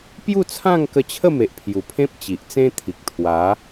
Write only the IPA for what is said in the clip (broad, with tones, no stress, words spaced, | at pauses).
pju˥˧t͡sʰã˥˧ŋ kə˧t͡ɕʰə˥˧me˨ʔ pʰju˨˩pʰẽ˦p̚ t͡ɕi˨ʔt͡sẽ˦t̪ʰi˨k̚ t̪ʰwa˨˦